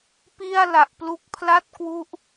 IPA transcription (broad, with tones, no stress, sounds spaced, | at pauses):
p i˥˩ a̯ l a˨˩ ʔ p l u˦˥ k̚ pʰ l a˥˩ t̚ k w u˥˩ ʔ